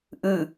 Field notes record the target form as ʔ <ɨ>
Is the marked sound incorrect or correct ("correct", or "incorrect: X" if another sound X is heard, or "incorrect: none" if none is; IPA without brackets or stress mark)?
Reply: incorrect: ʉ